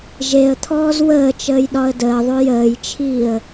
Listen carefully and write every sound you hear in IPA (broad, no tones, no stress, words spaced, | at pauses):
ʒeə̯t̪ʰɔːz wəːt͡ʃəːjɗɒə̯ dəːðˤo jəːjt͡ʃʰiːə̯